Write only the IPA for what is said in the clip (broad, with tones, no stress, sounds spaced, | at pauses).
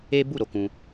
e˦ b u˦˨ ɾ o˨ k ũ˧